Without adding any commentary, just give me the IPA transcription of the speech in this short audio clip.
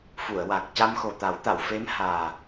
fu˨˩˨ə̯wa˨˩k̚ ca˧mxo˨˩t̪a˨˩˦wt̪a˨˩˨w fe˧˥mhaː˨˩

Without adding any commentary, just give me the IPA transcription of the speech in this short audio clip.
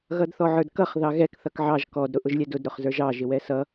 ɣʌdθɔʕə˞dkʌχ ðɑɣɛk θʌkʕɑʒ kɔd ɾʊʔʊʒlʲɛdʊd ɾʊχzə˞ʒɑ ʒɪwɛsʌ

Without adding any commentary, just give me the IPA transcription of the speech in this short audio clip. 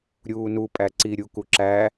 ɾʲuːnu pʼæǀi ɾʲukuǁæ

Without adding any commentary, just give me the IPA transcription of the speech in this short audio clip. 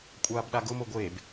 kʷʼaːbɗaɡʊ moɡʷeb

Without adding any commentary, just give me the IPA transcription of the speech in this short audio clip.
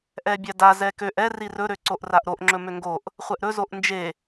ʔɛbʲada zɛkøʔ ɛ rirɵ ɾøǀoʔraʔɾoʔ ŋ͡ǁɵmøŋɡoʔ | χʷɛʔɾɵ zoʔnd͡ʒe

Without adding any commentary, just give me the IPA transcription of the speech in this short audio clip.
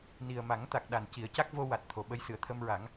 ni˨˩ə̯ma˨˩˦ŋt̪a˨˩k̚ ɗa˨˩nci˨˩˦ə̯ ca˦˥k̚vo˧ wa˨˩t̚ t̪ʰo˨˩ ɓə˧jsɨ˨˩˨ə̯ t̪ʰə˧mɹa˨˩˦ŋ

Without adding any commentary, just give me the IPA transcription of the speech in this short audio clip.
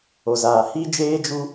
o˨zaː˨ hi˦d͡ʒeː˦ d͡ʒu˦

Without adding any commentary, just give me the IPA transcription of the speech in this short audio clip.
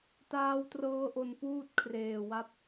taː˦˥wtrɤː˦˥ʔo˧n puː˥˩t̚kʰreː˨˩ wa˦˥p̚

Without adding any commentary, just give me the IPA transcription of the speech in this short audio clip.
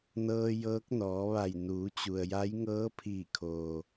nɤː˧jɤː˧˥k̚nɔː˩˧ʋa˧˩j nuː˩˧t͡ɕu˩ə̯ja˧˥j ŋɤː˧˥pʰiː˧˩kʰoː˩

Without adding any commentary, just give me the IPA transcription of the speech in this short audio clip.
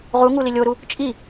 ʁuŋu lilʲoɾu | t͡ʃʼi

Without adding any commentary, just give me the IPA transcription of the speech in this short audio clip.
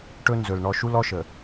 ʈɵ˦ nzɵ˨l ɳɔ˨ʃu˦l ɔ˦ʃə˨

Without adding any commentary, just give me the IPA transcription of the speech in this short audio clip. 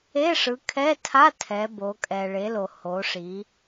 e˧˥˧ʂɯ˨˦kʰɛ˧˥˧tʰa˧˥˧ tʰɛ˨˦bo˨˦kʼɛ˨ ɭe˨˦lo˨ ho˨˦ʂi˨˦

